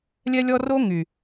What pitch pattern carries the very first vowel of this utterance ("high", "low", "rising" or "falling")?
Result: high